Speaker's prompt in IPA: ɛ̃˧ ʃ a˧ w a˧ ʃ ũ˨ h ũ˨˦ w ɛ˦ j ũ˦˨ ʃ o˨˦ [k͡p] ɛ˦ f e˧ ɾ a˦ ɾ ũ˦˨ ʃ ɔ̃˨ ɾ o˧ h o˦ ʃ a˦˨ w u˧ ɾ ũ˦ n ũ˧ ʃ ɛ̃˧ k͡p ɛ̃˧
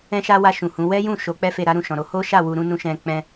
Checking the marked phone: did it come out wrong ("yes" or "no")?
no